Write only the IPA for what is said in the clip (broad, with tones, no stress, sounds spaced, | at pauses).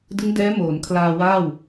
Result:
d ɯ˦˥ ŋ d ɛː˦˥ m oː˩˦ n kʰ l aː˧ w aː˥˩ w